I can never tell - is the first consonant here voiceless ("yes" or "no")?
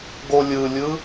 no